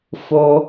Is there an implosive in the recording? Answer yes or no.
no